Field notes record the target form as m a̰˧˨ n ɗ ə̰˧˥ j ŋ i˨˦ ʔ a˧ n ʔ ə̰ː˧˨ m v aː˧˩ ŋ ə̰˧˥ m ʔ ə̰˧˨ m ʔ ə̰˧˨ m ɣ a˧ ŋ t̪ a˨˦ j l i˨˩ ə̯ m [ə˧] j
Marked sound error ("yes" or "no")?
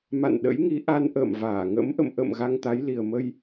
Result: no